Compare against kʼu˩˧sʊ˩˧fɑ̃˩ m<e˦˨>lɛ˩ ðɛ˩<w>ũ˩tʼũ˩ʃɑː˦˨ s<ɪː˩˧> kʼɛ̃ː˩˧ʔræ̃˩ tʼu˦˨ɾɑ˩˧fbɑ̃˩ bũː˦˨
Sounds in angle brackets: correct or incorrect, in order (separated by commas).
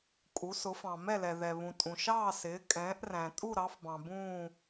incorrect, incorrect, correct